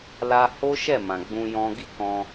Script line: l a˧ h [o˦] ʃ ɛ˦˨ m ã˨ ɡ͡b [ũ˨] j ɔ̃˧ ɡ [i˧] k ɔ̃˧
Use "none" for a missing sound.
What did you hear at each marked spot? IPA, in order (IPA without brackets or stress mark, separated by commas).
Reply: o˦, ũ˧, i˦